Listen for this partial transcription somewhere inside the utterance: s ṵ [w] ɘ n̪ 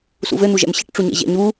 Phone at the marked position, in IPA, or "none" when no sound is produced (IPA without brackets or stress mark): v